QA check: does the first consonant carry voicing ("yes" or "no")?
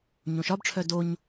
yes